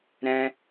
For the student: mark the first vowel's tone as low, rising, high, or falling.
high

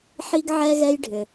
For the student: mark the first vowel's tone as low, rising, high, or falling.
high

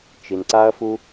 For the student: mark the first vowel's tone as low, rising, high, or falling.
low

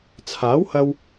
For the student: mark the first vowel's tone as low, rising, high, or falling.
rising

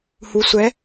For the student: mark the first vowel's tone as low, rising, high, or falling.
low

